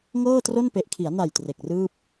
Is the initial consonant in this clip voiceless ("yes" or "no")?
no